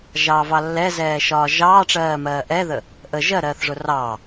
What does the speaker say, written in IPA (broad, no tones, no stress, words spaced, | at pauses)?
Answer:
ʒɑvɑ lːɛzɛːʃɒː ʒɑːʈ͡ʂɜːmɜː ʔɛðə | ʔə ʒɜɾɜːθʐʊ rɑː